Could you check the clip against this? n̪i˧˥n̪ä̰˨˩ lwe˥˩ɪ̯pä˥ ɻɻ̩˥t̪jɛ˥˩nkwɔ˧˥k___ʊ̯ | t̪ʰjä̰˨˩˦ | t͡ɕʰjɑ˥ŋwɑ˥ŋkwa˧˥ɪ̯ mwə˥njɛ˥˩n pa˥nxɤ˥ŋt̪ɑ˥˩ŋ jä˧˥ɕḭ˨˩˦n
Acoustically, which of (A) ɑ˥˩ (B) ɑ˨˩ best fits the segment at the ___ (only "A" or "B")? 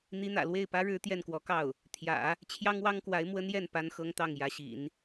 A